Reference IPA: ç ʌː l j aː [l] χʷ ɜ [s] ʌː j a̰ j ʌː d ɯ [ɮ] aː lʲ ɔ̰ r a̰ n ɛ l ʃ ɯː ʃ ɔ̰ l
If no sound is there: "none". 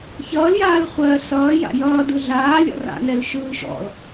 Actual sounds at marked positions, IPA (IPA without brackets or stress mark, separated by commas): l, s, ɮ